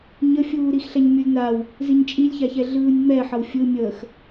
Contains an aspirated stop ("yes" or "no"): no